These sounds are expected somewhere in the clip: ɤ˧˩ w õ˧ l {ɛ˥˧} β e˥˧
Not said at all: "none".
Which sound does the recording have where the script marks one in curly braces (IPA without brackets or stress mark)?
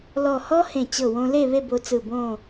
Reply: e˥˧